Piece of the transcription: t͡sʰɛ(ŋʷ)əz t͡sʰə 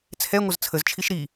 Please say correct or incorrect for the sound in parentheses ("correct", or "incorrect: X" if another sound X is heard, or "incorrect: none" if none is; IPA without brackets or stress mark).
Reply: correct